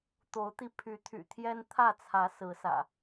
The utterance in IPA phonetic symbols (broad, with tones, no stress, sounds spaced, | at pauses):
t̪ o˨˦ ʊ̯ t̪ i˧ pʰ y˨˦ t̪ʰ y̰˨˩ t̪ʰ j ɛ˦ n t̪ʰ ä˥˨ t͡sʰ ä˨˦ s ɹ̩˨˦ s ä̰˨˩